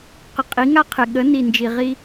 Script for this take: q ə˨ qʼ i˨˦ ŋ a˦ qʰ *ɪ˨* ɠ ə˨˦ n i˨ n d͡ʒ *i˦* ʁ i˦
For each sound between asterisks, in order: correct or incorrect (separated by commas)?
correct, incorrect